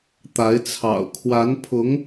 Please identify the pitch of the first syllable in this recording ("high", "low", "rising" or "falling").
rising